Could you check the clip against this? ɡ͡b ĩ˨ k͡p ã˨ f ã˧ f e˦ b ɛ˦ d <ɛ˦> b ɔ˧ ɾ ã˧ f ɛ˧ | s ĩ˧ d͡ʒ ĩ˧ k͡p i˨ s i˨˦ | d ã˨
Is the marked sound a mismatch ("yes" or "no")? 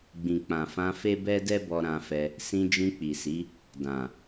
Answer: no